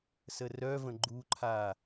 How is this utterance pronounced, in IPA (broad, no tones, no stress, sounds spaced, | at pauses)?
s ə r œ v ə̃ ɡ͡ǃ u ǃʰ a